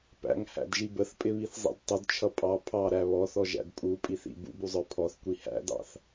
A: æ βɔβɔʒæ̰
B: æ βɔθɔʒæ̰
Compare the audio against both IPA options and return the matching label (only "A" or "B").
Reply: B